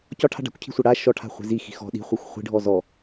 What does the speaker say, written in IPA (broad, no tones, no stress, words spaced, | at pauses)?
cɒʈʰa̤ ɖa̤kʷcʰi̤sʷa ɽa ʃɔʈʰa̤χʷi̤ zixi̤ xɔ̤ ɗi̤χʷaxʷ χʷi̤ɖʱɔ zɔ